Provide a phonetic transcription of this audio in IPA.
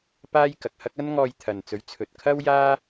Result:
paː˥j kɐ˨k̚hɐ˥k̚ ɐ˥nŋɔː˧jt̪ʰɐ˨nt͡sɵ˨˥ɥ t͡sʰɵ˨t̚kʰɐ˥w jaː˥

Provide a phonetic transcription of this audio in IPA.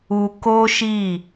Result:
u˧ ko˦ʃi˦˨

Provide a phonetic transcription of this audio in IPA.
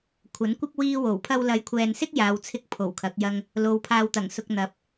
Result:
kʷʰɐ˨˥nkʷɪ˥k̚ wiː˥wo˨˩w pʰɐ˧wlɐ˨˧jkʷʰɛː˨nsɪ˥k̚ jaː˨˧wt͡sʰɪ˥k̚ pʰo˨˩wkʰɐ˨˥k̚jɐ˥ŋ | lo˨˧wpʰaː˧wt̪ɐ˨˩ŋsʊ˧k̚ n̪ɐ˨˥p̚

